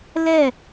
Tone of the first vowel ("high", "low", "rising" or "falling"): falling